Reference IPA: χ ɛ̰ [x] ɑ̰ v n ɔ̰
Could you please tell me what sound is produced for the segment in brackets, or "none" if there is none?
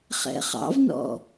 χ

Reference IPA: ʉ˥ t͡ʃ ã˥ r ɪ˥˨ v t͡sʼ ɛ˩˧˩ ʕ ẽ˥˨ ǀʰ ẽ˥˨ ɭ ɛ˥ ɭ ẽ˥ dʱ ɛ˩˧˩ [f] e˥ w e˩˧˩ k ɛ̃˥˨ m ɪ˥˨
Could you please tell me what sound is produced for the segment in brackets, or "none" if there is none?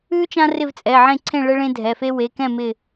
f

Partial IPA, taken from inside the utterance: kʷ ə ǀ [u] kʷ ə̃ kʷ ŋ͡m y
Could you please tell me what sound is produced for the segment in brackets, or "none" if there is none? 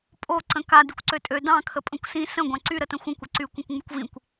y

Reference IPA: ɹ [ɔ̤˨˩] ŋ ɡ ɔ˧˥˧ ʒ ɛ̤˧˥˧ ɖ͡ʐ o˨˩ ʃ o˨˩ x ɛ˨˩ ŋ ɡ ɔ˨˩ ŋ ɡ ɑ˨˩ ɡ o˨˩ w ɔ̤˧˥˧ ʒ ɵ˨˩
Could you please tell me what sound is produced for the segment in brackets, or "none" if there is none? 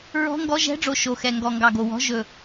ɔ̤˧˥˧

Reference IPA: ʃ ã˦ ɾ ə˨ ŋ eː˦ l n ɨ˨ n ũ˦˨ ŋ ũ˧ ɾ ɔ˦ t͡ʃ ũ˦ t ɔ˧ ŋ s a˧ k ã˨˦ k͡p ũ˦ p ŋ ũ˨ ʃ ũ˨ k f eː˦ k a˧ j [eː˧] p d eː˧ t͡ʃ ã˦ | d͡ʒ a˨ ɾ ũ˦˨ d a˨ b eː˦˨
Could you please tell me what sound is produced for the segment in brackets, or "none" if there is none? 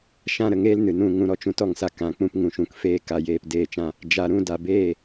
eː˧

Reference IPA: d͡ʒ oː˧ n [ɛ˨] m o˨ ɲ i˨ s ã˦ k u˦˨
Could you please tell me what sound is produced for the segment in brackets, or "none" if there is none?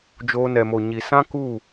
ɛ˨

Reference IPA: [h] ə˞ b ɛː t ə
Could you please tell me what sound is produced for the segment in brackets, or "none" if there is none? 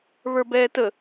β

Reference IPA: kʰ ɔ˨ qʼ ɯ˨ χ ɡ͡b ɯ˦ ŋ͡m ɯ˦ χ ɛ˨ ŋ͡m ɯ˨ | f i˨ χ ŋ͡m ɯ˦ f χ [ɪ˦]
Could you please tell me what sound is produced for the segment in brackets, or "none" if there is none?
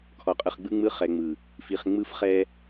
ɛ˦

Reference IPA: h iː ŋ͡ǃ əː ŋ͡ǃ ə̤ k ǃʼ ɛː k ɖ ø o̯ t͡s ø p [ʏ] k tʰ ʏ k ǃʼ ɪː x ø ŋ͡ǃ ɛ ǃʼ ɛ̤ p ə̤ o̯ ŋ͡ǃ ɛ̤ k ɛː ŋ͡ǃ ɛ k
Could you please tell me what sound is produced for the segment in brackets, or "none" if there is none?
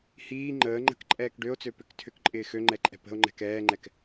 ʏ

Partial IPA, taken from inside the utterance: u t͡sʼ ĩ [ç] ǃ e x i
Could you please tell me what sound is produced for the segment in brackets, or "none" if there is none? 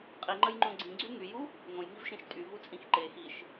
x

